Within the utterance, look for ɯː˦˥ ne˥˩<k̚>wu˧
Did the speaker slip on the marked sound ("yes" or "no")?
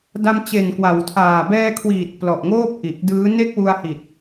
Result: no